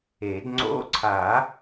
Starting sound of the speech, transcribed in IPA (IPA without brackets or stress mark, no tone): e